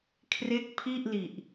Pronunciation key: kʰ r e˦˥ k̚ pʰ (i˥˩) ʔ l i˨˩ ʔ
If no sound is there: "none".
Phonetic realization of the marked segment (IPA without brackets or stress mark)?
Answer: i˥˩